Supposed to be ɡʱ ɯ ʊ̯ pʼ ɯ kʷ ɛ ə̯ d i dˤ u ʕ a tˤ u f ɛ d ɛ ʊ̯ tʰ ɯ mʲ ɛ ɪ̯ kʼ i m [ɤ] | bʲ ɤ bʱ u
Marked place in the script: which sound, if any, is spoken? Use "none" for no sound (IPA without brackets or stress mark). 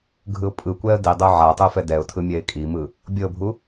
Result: ɯ